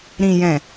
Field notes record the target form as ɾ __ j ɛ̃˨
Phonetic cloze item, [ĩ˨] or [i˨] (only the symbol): ĩ˨